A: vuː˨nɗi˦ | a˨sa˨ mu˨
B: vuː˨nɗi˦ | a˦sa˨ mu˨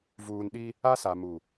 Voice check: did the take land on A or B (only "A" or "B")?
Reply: B